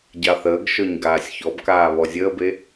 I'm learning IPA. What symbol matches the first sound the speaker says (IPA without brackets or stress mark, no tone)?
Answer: ɟ